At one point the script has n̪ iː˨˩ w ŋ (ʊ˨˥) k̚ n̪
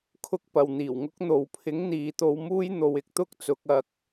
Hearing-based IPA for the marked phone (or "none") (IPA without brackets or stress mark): ʊ˥